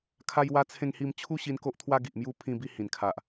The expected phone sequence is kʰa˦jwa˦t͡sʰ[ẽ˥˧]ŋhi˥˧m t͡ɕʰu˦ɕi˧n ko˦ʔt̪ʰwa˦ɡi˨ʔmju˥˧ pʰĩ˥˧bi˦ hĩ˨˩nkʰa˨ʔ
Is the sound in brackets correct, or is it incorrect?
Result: correct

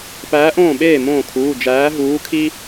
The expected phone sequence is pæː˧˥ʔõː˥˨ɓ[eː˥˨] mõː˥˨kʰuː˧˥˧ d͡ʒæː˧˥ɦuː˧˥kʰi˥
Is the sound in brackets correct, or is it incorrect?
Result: correct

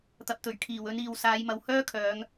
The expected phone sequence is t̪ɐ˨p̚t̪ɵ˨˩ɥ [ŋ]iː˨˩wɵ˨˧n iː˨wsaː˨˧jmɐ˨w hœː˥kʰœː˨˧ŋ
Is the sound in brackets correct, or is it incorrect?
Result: incorrect: kʰ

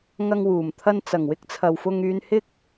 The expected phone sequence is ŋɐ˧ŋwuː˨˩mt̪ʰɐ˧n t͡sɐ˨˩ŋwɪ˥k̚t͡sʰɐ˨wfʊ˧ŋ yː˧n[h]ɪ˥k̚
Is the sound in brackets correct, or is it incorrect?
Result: correct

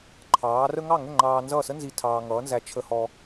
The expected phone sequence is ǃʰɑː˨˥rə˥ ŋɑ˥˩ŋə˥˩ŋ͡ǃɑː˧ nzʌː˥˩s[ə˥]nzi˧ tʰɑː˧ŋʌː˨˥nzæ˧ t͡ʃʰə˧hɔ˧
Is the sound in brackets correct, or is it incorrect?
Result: correct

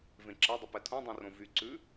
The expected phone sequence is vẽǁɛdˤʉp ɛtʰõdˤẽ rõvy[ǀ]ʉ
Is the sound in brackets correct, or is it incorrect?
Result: correct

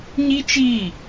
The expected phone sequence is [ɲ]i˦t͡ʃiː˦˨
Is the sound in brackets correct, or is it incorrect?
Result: correct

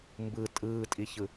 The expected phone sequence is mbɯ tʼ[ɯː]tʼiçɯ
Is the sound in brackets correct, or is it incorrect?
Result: correct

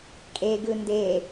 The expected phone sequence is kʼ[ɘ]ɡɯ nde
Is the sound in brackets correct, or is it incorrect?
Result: incorrect: e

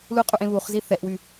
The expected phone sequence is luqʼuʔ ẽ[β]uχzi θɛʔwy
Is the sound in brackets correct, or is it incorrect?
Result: correct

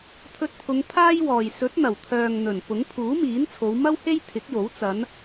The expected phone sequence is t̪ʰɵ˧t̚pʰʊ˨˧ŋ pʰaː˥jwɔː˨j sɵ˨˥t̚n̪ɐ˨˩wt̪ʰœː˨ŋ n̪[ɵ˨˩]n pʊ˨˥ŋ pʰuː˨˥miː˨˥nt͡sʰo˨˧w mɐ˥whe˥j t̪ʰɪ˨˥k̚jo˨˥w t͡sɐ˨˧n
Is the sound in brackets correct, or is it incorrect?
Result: correct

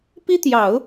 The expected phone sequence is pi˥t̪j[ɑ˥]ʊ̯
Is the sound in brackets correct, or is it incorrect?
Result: incorrect: ɑ˨˩˦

